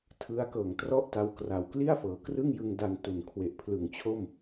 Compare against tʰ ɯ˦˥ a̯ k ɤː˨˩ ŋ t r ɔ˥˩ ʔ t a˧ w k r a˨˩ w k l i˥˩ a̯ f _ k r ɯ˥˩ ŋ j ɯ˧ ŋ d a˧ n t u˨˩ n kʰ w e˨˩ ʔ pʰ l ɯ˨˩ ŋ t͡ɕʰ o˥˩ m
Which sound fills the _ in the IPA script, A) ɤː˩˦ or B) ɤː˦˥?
A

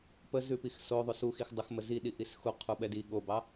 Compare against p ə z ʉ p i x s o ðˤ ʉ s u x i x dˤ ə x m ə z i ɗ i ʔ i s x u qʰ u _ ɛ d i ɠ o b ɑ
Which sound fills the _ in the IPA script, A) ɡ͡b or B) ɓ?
B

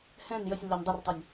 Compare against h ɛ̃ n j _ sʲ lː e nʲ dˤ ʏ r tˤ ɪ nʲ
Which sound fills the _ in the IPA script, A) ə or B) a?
A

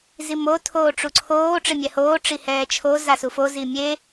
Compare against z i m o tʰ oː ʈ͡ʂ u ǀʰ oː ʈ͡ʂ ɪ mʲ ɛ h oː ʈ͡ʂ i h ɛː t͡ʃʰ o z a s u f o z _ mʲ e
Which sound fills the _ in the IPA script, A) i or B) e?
A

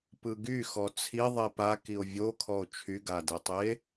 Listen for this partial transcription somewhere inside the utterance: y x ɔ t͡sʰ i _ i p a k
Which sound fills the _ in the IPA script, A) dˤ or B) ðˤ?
B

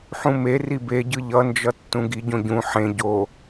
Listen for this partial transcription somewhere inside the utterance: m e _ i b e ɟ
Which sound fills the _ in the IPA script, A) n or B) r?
B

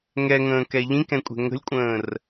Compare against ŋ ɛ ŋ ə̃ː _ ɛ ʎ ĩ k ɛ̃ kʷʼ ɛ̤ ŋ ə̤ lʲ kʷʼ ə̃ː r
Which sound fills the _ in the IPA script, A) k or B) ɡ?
A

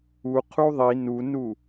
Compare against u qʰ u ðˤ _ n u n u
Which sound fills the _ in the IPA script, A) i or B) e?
A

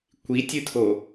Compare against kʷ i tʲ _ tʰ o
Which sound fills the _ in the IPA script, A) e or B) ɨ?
B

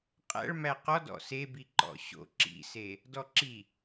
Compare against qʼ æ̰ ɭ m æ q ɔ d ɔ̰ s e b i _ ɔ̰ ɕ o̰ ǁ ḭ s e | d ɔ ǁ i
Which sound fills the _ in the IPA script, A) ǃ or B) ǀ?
A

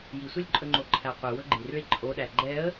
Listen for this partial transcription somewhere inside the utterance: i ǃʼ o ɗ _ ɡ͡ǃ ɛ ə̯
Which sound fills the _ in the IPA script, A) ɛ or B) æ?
B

